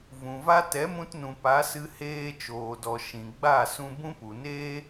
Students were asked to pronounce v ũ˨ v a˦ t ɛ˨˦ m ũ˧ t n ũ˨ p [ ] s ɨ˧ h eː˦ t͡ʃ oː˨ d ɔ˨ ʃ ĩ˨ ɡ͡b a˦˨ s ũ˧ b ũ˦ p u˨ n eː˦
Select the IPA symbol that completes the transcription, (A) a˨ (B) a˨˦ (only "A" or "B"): B